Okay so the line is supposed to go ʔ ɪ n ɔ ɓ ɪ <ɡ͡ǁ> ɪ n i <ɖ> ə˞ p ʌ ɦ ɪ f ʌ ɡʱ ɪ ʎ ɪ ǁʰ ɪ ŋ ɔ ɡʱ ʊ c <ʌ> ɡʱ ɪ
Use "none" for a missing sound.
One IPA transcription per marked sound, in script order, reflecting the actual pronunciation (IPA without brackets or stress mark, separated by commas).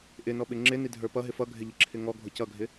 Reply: ŋ͡ǁ, dʱ, ʌ